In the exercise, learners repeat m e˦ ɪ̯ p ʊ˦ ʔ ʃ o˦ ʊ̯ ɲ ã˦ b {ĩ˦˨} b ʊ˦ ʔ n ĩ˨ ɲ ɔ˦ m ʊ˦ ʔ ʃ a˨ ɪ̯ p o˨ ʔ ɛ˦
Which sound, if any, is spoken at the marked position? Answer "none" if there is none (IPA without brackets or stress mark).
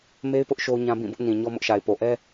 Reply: ĩ˦˨